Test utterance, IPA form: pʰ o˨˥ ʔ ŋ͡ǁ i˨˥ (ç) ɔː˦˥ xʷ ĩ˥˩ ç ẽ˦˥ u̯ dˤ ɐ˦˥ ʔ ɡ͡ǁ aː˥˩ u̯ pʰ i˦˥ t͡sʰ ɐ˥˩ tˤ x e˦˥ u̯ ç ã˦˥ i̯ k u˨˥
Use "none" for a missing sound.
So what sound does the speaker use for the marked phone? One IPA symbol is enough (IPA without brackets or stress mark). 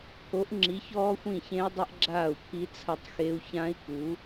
ç